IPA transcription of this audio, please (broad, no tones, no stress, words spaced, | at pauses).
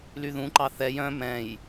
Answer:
lyðũǃɑ θɛj œ̃ mɛ̃j